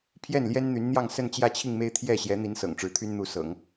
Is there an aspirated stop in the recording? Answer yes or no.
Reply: yes